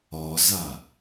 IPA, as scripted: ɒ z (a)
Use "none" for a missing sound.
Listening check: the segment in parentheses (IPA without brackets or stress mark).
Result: a